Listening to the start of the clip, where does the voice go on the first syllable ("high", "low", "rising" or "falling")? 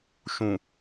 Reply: low